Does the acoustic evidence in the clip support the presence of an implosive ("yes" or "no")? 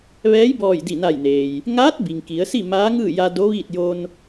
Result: no